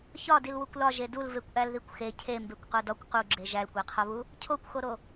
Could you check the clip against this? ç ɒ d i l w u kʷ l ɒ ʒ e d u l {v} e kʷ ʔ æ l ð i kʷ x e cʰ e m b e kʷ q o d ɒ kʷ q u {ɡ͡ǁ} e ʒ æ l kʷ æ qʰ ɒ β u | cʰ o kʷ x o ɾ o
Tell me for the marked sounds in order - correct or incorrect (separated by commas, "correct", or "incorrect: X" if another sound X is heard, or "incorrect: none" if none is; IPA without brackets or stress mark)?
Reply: correct, correct